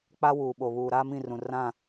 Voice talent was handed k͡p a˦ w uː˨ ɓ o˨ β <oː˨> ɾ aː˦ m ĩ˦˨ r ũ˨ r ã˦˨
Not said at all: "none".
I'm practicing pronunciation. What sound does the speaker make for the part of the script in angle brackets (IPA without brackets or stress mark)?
uː˨